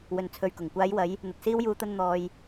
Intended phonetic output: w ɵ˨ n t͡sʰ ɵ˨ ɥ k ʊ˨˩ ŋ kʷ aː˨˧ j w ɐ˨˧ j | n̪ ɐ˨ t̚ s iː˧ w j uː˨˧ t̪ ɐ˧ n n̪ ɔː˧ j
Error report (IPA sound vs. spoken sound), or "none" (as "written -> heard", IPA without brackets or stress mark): none